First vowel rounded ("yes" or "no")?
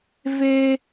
no